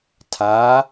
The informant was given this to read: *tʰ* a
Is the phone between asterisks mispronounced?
no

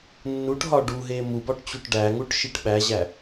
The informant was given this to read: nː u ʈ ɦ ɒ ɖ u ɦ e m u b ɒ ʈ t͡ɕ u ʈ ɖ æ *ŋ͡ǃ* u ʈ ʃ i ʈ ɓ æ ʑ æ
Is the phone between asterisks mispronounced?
yes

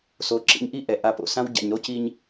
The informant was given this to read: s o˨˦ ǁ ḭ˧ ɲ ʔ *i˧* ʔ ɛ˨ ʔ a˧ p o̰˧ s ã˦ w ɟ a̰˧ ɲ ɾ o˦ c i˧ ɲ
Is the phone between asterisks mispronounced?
yes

